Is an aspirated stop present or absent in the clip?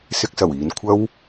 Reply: present